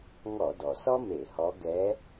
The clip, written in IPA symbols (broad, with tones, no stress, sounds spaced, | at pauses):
ŋ ɔ˧˩˧ d ɔ˩ s ɔ˥ m e˧˩˧ h ɔ˧˥ ɡ ɛ˧˥